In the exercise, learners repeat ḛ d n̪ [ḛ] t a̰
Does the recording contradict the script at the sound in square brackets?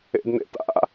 no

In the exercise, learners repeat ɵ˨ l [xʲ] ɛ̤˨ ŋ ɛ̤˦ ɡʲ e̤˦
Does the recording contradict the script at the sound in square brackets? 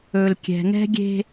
yes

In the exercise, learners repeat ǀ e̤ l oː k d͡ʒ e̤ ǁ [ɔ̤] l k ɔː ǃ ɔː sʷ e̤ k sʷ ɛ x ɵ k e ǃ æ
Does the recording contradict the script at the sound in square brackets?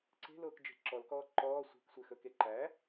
yes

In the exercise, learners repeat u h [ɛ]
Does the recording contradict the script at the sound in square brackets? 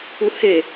yes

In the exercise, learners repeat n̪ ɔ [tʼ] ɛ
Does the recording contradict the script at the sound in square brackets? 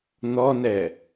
yes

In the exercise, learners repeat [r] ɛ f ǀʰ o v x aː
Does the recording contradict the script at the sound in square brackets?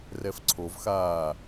no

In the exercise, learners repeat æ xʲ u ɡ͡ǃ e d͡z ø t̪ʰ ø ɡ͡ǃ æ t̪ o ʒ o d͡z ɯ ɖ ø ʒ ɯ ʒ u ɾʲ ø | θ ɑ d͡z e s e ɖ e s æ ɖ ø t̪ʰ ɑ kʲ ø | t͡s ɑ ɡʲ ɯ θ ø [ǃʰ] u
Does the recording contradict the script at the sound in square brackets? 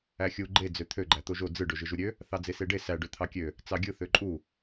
yes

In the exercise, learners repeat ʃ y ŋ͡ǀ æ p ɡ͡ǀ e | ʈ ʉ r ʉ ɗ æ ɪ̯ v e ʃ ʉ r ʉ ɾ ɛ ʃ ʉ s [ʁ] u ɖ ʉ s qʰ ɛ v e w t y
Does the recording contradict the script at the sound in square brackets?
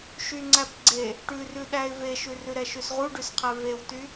no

